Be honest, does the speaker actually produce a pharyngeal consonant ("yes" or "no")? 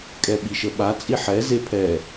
yes